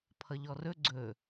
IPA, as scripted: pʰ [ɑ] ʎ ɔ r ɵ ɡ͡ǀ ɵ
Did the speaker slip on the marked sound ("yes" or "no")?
yes